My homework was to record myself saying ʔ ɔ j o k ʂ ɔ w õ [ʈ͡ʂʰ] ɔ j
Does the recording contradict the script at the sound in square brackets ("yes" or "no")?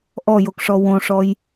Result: yes